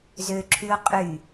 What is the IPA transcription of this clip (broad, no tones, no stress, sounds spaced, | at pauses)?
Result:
z ø ǁʰ y o̯ qʼ y